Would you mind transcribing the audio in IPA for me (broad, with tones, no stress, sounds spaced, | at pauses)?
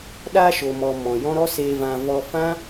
ɗ a˧ ʃ o˨ m ɔ˨ m ɔ̃˨ j ɔ̃˦ ɾ ɔ˦ s eː˧ v ã˧ v ɔ˧ f ã˦